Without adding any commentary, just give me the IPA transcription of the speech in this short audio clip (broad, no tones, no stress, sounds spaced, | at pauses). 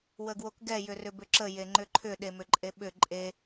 w ə ɡ w o k ɡ ɛ j ʏ r ʏ b ʏ ǁ ə j e ŋ͡ǃ ʏ ǃʰ ʏ ɗ e m ʏ ǃʼ e ɓ ʏ ǃʼ e